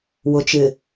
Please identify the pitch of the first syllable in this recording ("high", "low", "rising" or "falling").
low